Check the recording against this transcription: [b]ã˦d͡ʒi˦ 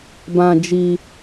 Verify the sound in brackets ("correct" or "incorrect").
correct